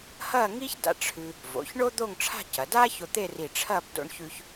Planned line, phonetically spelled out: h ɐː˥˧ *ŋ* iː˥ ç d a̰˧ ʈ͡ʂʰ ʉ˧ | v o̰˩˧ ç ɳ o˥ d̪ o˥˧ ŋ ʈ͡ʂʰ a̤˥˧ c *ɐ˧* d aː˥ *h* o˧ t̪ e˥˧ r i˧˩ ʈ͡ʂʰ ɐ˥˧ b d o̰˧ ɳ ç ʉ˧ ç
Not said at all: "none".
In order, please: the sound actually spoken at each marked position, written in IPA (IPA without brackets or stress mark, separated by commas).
ŋ, ɐ˩˧, ç